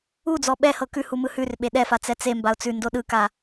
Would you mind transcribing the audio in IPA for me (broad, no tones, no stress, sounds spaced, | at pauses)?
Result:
u d͡z ɔ ɓ ɛ h ɤ k ʉ h u m ɯ h ʉ r ɓ e ɗ ɛ f a t͡s ɛ t͡s e m b a ʊ̯ t͡s ʉ n d o ɗ ɯ k a